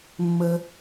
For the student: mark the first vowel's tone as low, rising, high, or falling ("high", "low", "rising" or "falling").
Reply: high